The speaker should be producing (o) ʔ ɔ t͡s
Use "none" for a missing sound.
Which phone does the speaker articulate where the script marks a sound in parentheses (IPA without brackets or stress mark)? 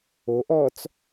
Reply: o